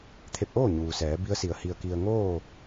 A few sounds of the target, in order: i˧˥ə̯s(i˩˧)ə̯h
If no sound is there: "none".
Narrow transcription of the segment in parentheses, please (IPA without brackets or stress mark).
i˩˧